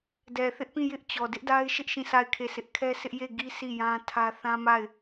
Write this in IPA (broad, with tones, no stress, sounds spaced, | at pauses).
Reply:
d ɛ˨ θ ɪ˦ ʔ p ĩ˦˨ j ɪ˦ ʔ t͡ɕ ɔ˨ d ɪ˦ ʔ d a˦ ɪ̯ ʃ ɪ˦ ʔ ʃ ĩ˦˨ s a˦˨ ɪ̯ kʰ e˦˨ sʰ ɪ˦ ʔ kʰ ɛ˦ s ɪ˦ ʔ j e˦˨ ɡ i˦ sʰ i˦˨ j ã˦ tʰ ä˦ θ ã˦ m a˦˨ ɪ̯